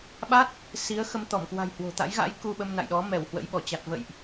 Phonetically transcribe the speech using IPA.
ɓa˦˥t̚ | si˨˦ə̯xə˧m t̪ɔ˧˩mkwa̤˨˩j hwo̤˨˩t̪a̰˧˥j ɣa̰˧˥j ku˧ɓə˧mna̰˧˨jɗɔ˨˦ mɛ˧˩w hwə̰˧˥jɓɔ˧˩ t͡ɕa˨˩t̚və̰˧˨jʔ

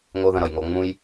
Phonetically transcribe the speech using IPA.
ŋo˦ðə̃˧ɾʌ˨jŋo˧ ŋ͡mũ˦j

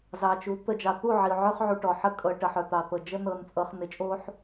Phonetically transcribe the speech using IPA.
zɑ˨t͡ʃu˨˦ t̪ə˨d͡ʒɑ˨t̪u˦˨ ʕi˨ʊ̯ʕœ˦χʕu˨ ʈɔ˨ħə˦ kʼɤ˨ ʈə˨ħœ˨t̪ɑ˨ t̪ɤ˨d͡ʒə˦ nɤ˨nt͡sʼɤ˨χ nɪ˨t͡ʃʼo˦ħ

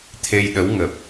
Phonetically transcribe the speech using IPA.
t̪ʰe˧jɗə˨˦wŋə˨˩p̚

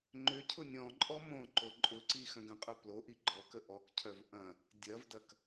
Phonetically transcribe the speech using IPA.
ŋ͡ǃʏ cʰʊnʲɔ̃ǃʼɔ mõǃo ǃʼʊǀi xœ̃ɡə̃qʼœ ploʔi ɡ͡ǃɔkə ʔɔkcʰœv ʔɐ̃ | dʲɐvdɐk

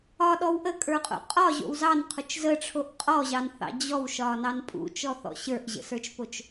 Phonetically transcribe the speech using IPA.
ɒɗɔw ʔəkʼə˞qʼo̰ qʼɒʑo̰w zɑnqʰot͡ʃ zəʈ͡ʂʰoʔ qʼɔʑɑnθɑ̰ d͡ʑɔwʃɒnɑn pʼṵt͡ʃɔθɔ̰ ɕə˞ʔʑə̰sə˞t͡ʃpot͡ʃ

